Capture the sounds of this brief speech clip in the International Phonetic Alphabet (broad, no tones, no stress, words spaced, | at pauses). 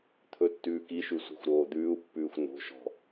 t̪ʰɵtːʉːkiʃʉ sʷi̤xʷɾoːd̪ʉːu̯pːʉːxʷ no̤ʃɔ̤